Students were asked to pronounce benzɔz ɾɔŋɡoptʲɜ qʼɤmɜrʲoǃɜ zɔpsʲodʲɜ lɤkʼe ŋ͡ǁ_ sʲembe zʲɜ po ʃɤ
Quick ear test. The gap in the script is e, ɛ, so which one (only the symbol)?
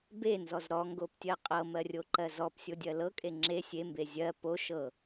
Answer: e